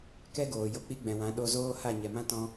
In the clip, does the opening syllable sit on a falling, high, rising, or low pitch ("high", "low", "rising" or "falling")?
high